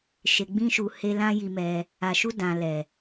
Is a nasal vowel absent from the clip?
no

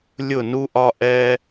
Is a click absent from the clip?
yes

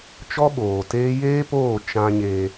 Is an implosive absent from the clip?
no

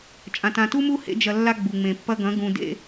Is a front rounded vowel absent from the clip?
yes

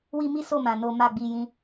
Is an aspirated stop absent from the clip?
yes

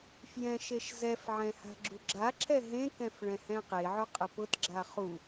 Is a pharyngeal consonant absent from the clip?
no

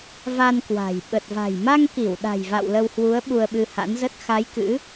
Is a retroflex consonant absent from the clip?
yes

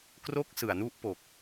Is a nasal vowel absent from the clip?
yes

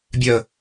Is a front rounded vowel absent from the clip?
no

